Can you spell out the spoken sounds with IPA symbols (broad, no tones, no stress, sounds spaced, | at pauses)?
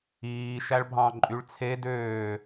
iː ʃ æ ɭ bʱ ɑ̃ ǃʼ y ɭ t͡sʰ e d øː